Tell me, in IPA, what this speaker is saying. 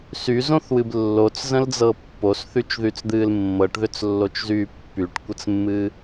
s y z õ θ w ɨ b lː o t͡s z ə̃ l d͡z ɤ pː o s θ y t͡ʃ ð y t͡s d̪ ɨː l mː ɤ ʈ ð ʏ t͡s lː o t͡ʃ z yː pː y ʈ kʷ ə t͡s mː ɨː

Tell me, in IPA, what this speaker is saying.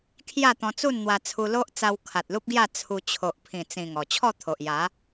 kʰ j a˥˧ t̪ ɔ̃˧ t͡s u˥˧ n n̪ w a˧ t͡sʰ u˧ l o˦ ʔ t͡s a˧ w kʰ a˨ t̚ l u˦ p̚ ɡ j a˥˧ t͡sʰ u˧ t͡ɕʰ o˨ ʔ pʰ ĩ˨˩ t͡s ĩ˨˩ ŋ ɔ˨˩ t͡ɕʰ ɔ˥˧ t̪ʰ o˨ ʔ j a˨˦

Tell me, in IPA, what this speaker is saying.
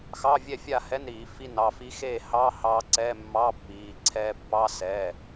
x ɑ˧˥˧ vʲ ɛ˥˨ fʲ a˥˨ h ɛ˧˥˧ n ɾ iː˨˩˦ f i˧ n ɑ˩˧˩ f i˦˥ x eː˥˨ h ɑː˧˥˧ h ɑː˧ ǀ ɛ˧˥˧ mː ɑː˧˥˧ pː iː˩˧˩ ǀʰ ɛː˧ pː ɑ˧˥˧ s ɛː˩˧˩

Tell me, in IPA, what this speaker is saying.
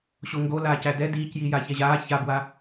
ɕ o ŋ ɡ o l aː c æ d ɛ d iː c j i j a ç ɛ ʑ aː ç a b w a

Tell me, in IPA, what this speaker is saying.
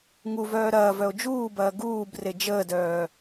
ŋ u v œː ɾ ɐː v œ o̯ d͡ʒ uː b ɐː ɡ uː b r e d͡ʒ əː d œː

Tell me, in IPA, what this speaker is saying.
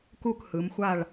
k u˥˨ k h ɯ˩˧ m xʷ a˥˨ ɭ

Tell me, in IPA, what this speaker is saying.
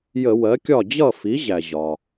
j ə˧˩˧ w ɜ˩˥ kʲ ɒ˥˩ d͡ʑ ʌ˥˩ f i˩˥ ʑ æ˩ ʑ ɒ˩

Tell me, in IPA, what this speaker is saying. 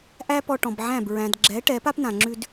ʔ æ˥ p ɔ˧ ʈ ɔ̃˩ b ʕ æ̃˥˩ b ɹ æ̃˩ d ɡ͡ǁ ɛ˩˥ ʈ ɛ˩˥ p a˥ p n ã˩ ŋ͡ǁ ʉ˧ d

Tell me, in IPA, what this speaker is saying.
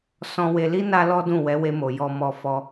s ɔ̃˧ w e˧ l i˦ n a˦ l ɔ˦ d ũ˦˨ w ɛ˨˦ w e˧ m o˨ j ɔ˧ m ɔ˧ f ɔ˧

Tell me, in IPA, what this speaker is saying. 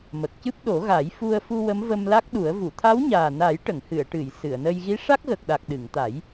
m ə˨˩ k̚ c ɨ˦˥ p̚ ɗ o˨˩˦ ɣ a˨˩˦ j f u˧ ə̯ f u˧ w ə˧˥ m v ə˧ m l a˦˥ k̚ ɗ u˨˩˦ ə̯ v u˨˩˨ t̪ʰ a˧˥ w ɲ aː˨˩ n a˨˩˦ j ʈ ə˨˩˨ ŋ h ɨ˨˩˨ ə̯ ʈ ɨ˨˩˨ j s ɨ˨˩˨ ə̯ n ə˧ j ɣ i˧˥ ʂ a˦˥ k̚ ɣ ə˨˩ k̚ ɗ a˨˩ k̚ ɗ ɨ˨˩˨ ŋ t̪ a˨˩˦ j

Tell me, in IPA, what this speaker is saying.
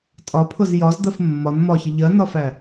tʼ ɒ pʰ ʊ z j ɒ z d̪ ɜ f mː ɒ n m ɒ ç ə ʎ ɜ n ɒ f æ

